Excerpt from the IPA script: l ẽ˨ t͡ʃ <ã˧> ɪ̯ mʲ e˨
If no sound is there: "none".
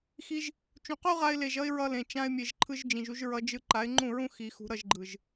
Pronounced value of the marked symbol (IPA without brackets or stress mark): ã˧